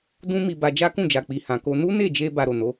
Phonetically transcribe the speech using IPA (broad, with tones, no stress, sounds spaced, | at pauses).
d ũ˦ m i˧ b a˧ d͡ʒ a˦ k ũ˦˨ d͡ʒ a˨ k͡p i˨ h ã˨ k o˧ n u˦ n e˦˨ d͡ʒ e˧ b a˧ ɾ o˨ n o˨˦